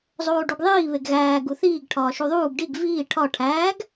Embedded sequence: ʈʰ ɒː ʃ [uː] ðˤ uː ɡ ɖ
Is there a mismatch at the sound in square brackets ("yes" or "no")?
yes